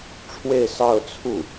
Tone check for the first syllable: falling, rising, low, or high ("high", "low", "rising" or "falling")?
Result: falling